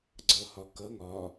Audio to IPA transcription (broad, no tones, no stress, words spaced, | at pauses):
ɡ͡ǀʌːhɒkʌ ŋɒː